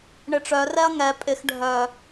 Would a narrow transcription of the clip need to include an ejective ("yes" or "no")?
yes